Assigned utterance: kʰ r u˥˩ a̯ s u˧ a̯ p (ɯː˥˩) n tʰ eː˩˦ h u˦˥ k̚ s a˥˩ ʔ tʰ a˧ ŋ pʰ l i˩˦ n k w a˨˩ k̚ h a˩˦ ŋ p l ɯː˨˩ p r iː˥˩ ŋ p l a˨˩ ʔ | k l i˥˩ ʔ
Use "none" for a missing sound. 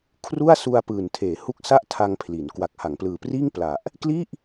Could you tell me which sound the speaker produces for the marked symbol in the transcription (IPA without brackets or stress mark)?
ɯː˨˩